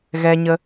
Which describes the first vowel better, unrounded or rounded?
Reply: unrounded